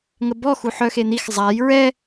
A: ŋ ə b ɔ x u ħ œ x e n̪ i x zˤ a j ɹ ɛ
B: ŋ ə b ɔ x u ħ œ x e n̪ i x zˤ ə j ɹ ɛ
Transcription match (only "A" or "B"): A